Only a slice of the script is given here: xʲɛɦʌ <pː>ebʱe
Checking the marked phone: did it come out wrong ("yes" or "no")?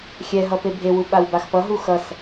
yes